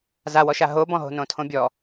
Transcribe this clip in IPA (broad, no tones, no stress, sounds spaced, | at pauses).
z a w ɔ ʃ a ɦ o b ɔ̃ ɦ o̤ n õ tʰ õ bʲ ɔ